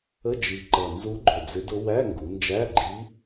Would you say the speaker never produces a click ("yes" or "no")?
no